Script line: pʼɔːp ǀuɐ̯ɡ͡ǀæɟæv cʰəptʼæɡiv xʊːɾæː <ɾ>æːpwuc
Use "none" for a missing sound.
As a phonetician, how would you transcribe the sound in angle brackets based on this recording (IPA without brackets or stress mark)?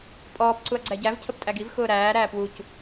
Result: ɾ